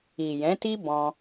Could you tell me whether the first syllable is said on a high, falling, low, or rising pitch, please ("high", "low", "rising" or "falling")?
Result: low